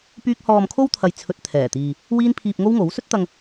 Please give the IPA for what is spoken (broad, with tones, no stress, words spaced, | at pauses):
pyː˥k̚ hɔː˧mkʰo˥wt̪ʰɐ˨j t͡sʰɵ˧t̚ t̪ʰɛː˨˩t̪iː˨ | wiː˥npʰiː˧p̚ŋo˥wŋo˨˥w sɵ˥t̚t̪ɐ˧ŋ